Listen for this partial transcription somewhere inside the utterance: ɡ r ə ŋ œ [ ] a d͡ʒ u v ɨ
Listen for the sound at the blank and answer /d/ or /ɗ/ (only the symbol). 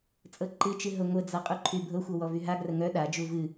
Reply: ɗ